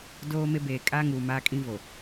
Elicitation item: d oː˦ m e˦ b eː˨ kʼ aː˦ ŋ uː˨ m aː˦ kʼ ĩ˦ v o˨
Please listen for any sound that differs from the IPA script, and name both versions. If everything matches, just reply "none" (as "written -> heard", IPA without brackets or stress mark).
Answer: none